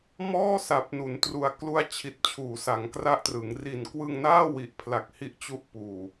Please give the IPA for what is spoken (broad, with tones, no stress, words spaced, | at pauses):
mɔː˥˩ sa˨˩p̚nu˩˦ntru˨˩a̯ klu˧a̯t͡ɕʰi˨˩t̚ t͡ɕʰuː˩˦sa˩˦ŋkra˦˥ʔtrɯ˩˦ŋ ri˨˩nkwɯ˧ŋnaː˥˩ wi˨˩ʔpʰla˨˩k̚ hi˦˥ʔt͡ɕu˦˥ʔpuː˨˩